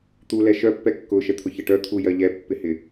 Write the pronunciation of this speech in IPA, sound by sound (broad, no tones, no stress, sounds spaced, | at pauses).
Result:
t̪ u l ɛ ʃ œ pː ɛ kː ʊ ʃ ɛ t̪ʰ ʊ ç ə ʈ œ t̪ʰ u j ɜ ʎ ɛ pː ɪ h ɪ